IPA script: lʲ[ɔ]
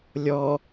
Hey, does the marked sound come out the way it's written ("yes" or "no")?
yes